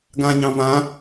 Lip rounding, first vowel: unrounded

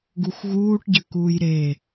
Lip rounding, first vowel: rounded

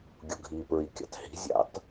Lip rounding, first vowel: rounded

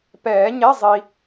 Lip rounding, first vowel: unrounded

